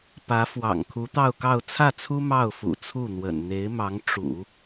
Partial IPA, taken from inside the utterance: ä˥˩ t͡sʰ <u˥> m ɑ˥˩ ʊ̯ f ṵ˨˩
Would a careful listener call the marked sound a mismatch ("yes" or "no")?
no